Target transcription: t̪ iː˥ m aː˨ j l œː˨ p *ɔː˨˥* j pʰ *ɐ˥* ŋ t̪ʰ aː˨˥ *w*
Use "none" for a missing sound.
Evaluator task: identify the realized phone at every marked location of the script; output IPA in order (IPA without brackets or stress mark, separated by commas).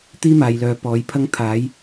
ɔː˨˥, ɐ˥, j